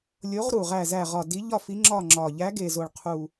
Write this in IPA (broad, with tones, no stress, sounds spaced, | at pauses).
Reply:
lʲ o˨˦ ʁ ɾ u˨˩ ʁ æ˦˨ z æ˦˨ ʁ ɒ˨˩ d i˨˦ ʎ ɒ˦˨ f i˨˦ ŋ͡ǁ ɒ˦˨ ŋ͡ǁ ɒ˨˩ ʎ æ˨˦ ɡ e˨˩ z o˨˩ ɭ qʰ u˨˩